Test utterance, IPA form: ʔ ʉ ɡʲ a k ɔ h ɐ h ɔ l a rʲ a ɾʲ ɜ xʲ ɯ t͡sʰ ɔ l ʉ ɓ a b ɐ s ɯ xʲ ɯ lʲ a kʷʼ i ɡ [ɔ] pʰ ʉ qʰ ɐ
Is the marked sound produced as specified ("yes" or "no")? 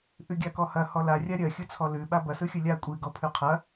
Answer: yes